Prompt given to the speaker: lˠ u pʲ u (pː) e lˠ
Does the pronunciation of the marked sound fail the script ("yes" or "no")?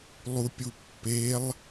no